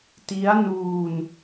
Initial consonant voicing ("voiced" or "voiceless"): voiceless